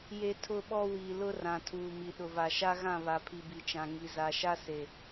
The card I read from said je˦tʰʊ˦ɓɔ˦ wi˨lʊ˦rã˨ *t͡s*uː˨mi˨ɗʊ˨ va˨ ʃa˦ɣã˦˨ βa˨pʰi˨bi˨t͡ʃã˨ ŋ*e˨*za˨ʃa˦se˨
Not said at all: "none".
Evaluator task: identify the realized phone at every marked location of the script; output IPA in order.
tʰ, i˨

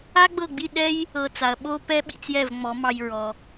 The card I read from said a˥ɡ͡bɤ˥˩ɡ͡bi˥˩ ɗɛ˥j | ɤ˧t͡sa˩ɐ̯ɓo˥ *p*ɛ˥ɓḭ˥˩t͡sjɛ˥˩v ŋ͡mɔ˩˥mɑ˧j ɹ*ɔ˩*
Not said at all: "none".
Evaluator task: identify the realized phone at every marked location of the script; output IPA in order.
p, ɔ˩

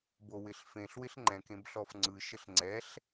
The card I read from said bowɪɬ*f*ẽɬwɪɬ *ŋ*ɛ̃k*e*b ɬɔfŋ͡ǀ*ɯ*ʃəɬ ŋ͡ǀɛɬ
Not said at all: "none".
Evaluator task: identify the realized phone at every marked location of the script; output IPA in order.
f, ŋ͡ǃ, ẽ, ɯ

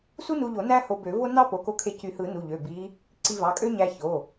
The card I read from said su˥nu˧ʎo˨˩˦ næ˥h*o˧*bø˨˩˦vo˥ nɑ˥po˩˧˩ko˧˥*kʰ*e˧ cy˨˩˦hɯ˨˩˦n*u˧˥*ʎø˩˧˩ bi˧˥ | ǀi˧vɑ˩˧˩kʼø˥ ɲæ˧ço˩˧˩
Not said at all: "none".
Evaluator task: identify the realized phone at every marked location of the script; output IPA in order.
o˧, kʰ, u˩˧˩

